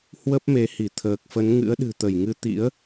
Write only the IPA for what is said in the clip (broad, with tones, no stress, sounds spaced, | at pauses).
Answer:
h w ə˦˥ p̚ m e˨˦ h i˧˩ t̪ʰ əː˨˩ k̚ f ə˨˦ n ŋ ɨ̰˧˥ ə̯ ɗ ɨ̤˨˩ t̪ ə˧˩ j ŋ ɨ˨˦ t̪ ḭ˧˥ ə̯